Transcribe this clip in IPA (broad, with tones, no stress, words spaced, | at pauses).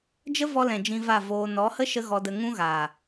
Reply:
d͡ʒə˦vɔ˧lɛ̃˨ d͡ʒĩ˧va˦˨ voː˧ nɔ˨˦hə˦ ʃə˦ɣɔ˧də˧ ŋũ˦ɣaː˨